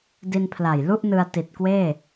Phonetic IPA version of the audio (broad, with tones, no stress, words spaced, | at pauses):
di˧npʰla˨˩jlu˥˩ʔ nɯ˧a̯ti˨˩t̚kweː˥˩